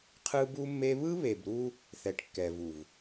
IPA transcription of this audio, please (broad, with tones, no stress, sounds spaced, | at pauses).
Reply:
qʰ ɯ˦ b u˦ mː e˦ β ɯ˦ β e˨ b ɾ u˦ | θ ɛ˨ ʈ kː ɛ˨ v u˨ v